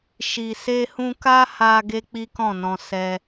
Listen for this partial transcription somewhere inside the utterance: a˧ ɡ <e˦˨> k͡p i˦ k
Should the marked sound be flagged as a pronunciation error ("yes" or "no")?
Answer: yes